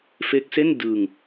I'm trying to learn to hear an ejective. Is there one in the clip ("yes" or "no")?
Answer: no